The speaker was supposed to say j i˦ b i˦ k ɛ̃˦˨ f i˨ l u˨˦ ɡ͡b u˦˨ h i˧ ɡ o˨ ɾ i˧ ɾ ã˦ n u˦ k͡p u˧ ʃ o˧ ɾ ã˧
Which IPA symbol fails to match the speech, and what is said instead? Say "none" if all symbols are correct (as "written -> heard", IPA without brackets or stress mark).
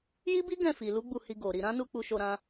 k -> ɡ